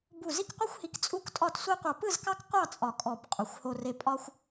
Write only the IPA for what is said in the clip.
b u˧˩ z i˥˧ k qʷ ɯ˥ xʷ h i˧ k t͡sʼ u˥˧ k tʼ ɒ˥˧ t sʷ i˥ qʷ ɑ˧ p ɯ˥˧ z k ɑ˥ k qʷ ɑ˥˧ t͡sʼ ɒ˧˩ kʼ ɔ˧˩ b qʼ u˩˧ xʷ h o˧ r e˧ pʼ ɒ˥ xʷ

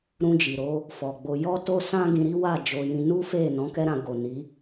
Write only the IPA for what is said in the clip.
ɾ ũ˧ d͡ʒ i˨ ɾ o˧ | f ɔ˨ ɡ͡b o˧ j ɔ˦ t o˦ s ã˦ ɡ ĩ˧ ɾ i˦ w a˦˨ d͡ʒ o˧ j ĩ˧ n u˦ f e˦˨ n ɔ̃˨˦ k ɛ˦ ɾ ã˧ ɡ o˨ n i˨˦

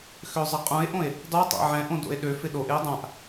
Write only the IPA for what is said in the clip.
x ø zˤ ɐ qʼ ũ e̯ ʔ õ e̯ | dˤ u tˤ a̰ ʕ ɛ̃ ʔ õ d o̰ e̯ ɗ ø f ɪ ɗ o ʔ ɪ o̯ dˤ ã ʔ

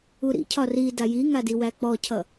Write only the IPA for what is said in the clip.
u ɾ ḭ cʰ ɒ r i d a j i ŋ a d i w æ k͡p ɔ cʰ ʌ

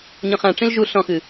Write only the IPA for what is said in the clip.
ɲ ɔ̃ χ ã ʈ͡ʂ ĩ l ʒ u ɬ ɔ̃ x ɨ

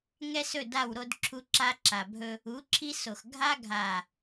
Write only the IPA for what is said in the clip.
ŋ ɛ˦ s ɵ˦˨ d a˦˨ w ɾ o˦ d ǁʰ u˦ ǁ a˦ ǁ a˨ bʱ ɵ˦ | u˨˦ ǁʰ i˦ s o˨ x ɡʱ a˦ ɡʱ a˨

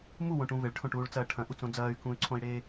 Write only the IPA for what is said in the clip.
m u w õ ʈ ũ v e ɭ ʈʰ õ ʈ uː ɭ t͡s ɐː ʈʰ ɐ̃ ʔ u t͡s õ d͡z ɐː y̯ k ũ y̯ ǀʰ õ i̯ ɽ eː

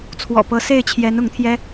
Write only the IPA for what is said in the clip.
t͡sʰ w ɔ̰˨˩ p ɤ˧˥ s e˥˩ ɪ̯ t͡ɕʰ j ɛ˧˥ n ʊ˧˥ ŋ t̪ʰ j ɛ˥

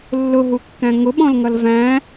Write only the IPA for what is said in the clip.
lː ʊ ɦ u kː æ̃ ŋ ʊ ɓ ɔ̃ l ŋ ʌ l v æ̃

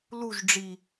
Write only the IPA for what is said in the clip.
l u ʒ ɖ͡ʐ i

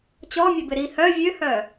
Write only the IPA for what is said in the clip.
t͡ɕ ɔ mʲ ø b ɪ ɾ i h œ vʲ ø h œ

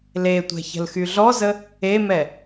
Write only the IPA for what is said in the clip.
l e tʷ ɛ̤ ç ə̤ l x y ɮ ɔ z ə | e m ɛ

